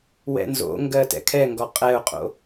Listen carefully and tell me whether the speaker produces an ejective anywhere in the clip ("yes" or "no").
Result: yes